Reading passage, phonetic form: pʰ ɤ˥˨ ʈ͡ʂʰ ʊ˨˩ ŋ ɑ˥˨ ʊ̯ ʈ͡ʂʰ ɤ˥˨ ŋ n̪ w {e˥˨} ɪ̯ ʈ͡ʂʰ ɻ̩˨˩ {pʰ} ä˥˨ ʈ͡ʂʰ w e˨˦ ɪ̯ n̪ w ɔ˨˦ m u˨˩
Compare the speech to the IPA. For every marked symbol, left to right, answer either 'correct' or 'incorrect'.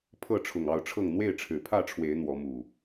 correct, correct

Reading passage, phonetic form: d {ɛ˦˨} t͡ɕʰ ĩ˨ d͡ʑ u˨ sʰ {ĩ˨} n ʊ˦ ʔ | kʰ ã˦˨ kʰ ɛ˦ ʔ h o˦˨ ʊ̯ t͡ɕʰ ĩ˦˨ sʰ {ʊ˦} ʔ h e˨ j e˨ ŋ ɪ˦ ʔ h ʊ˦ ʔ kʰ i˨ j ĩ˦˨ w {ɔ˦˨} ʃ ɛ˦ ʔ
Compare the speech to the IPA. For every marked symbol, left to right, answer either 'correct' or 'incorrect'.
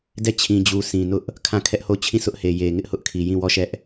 correct, correct, correct, correct

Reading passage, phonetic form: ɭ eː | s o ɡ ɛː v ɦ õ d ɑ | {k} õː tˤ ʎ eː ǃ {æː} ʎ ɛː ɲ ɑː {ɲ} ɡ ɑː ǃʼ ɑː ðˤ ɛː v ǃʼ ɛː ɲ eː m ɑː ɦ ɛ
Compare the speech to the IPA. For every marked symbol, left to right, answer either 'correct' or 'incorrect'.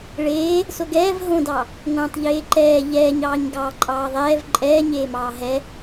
incorrect, incorrect, correct

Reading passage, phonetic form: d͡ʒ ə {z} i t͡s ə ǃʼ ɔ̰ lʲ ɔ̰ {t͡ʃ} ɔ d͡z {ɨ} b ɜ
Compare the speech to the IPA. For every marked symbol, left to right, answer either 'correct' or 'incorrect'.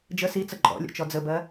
incorrect, correct, incorrect

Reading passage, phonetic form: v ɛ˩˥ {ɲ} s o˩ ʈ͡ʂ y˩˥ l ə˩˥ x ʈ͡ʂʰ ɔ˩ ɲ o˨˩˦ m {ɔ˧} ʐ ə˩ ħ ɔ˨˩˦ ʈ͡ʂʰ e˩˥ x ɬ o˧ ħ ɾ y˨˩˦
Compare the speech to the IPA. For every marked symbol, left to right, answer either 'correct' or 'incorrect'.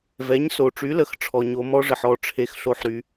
correct, incorrect

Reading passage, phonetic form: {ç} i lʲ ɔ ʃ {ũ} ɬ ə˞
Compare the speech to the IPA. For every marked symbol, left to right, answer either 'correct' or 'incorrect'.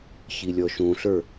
correct, correct

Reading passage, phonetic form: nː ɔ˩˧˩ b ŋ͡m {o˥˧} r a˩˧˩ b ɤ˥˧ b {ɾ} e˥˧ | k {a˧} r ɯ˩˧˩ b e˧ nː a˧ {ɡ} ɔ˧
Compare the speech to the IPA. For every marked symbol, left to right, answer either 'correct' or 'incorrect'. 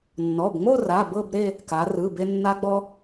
correct, correct, incorrect, incorrect

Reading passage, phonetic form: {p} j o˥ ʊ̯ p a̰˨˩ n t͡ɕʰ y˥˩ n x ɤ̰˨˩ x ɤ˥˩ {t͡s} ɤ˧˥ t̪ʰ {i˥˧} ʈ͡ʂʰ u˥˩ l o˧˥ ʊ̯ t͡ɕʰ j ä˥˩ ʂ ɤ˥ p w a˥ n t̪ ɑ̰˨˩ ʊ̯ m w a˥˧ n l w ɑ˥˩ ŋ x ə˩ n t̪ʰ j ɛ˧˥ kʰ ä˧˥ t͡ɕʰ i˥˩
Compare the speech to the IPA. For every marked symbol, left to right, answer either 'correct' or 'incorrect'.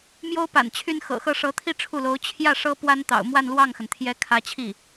incorrect, incorrect, correct

